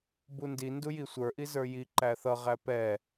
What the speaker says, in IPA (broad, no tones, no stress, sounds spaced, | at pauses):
b u n d i n d u j i sʷ ə˞ ʔ i z ə˞ j i ǃ æ θ ʌ ʁ æ p ɛ